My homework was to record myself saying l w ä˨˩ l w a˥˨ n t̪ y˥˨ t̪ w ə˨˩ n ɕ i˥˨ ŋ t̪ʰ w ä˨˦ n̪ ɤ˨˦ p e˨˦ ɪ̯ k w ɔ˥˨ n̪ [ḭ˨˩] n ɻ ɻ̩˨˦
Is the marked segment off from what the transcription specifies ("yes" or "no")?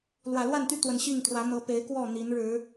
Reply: yes